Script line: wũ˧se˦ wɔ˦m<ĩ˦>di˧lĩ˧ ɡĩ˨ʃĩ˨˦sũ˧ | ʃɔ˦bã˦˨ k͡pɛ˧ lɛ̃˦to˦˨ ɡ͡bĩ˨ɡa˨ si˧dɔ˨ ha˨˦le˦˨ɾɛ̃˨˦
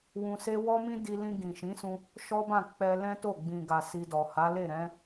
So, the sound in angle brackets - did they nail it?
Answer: yes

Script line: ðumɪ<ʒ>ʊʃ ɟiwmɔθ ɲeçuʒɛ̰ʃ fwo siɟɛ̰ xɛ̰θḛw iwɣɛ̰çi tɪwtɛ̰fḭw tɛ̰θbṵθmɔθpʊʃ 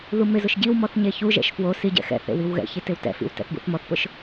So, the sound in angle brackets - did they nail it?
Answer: no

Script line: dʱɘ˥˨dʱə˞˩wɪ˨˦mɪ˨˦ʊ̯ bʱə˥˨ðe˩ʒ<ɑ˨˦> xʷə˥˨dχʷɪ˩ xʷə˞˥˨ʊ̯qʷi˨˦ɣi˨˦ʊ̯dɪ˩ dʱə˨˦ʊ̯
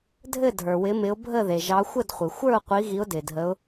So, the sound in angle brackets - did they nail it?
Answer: yes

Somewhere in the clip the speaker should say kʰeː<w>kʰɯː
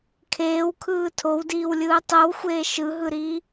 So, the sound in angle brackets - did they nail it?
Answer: yes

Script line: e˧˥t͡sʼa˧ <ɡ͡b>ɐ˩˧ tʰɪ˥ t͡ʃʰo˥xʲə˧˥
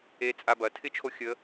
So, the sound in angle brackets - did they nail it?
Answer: no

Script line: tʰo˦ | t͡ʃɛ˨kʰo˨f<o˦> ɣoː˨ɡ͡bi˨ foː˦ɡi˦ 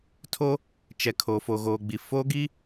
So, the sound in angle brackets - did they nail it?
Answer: no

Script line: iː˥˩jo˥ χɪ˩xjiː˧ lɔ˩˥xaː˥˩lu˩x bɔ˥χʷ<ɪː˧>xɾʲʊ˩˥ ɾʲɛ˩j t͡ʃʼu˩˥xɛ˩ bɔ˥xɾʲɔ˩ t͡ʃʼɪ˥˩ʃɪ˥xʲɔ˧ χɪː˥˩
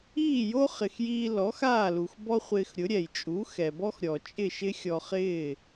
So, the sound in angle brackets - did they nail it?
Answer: yes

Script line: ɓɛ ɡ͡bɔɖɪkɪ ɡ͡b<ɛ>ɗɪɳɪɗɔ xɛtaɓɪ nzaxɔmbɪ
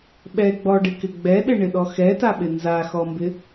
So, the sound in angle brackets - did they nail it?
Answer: yes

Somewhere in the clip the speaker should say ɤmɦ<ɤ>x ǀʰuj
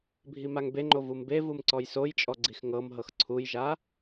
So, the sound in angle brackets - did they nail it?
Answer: yes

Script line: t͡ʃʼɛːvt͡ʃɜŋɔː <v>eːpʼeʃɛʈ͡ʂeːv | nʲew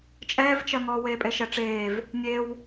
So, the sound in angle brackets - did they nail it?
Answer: no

